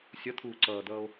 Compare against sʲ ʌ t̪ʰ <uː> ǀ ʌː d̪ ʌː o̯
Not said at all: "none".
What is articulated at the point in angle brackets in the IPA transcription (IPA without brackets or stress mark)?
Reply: uː